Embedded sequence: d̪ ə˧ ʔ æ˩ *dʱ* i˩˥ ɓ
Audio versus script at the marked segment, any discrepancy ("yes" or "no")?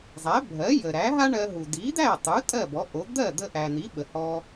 yes